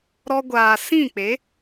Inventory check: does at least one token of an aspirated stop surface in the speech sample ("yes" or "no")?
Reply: no